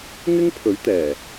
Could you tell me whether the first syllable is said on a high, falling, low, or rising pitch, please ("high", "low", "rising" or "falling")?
high